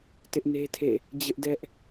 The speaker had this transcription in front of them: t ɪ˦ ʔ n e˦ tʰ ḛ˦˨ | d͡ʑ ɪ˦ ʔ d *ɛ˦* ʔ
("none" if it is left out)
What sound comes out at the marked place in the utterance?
ɛ˦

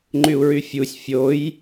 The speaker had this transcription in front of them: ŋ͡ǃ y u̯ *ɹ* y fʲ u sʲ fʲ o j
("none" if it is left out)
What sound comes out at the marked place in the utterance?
ɹ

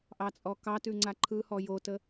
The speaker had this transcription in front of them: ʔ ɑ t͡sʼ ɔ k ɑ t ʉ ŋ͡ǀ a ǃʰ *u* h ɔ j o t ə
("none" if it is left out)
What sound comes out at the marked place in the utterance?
ɯ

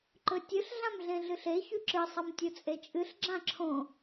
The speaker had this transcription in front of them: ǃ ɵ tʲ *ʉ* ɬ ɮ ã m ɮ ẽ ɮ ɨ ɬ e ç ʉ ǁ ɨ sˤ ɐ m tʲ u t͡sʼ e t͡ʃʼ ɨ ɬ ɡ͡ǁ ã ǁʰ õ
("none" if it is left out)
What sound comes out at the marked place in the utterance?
ɨ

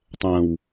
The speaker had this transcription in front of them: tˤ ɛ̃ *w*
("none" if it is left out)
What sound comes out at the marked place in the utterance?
w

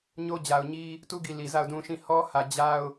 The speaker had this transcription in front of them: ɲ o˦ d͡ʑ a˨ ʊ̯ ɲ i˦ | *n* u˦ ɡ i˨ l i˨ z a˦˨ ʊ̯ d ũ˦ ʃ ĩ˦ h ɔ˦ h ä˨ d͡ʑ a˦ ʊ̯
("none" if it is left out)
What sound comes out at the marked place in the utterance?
t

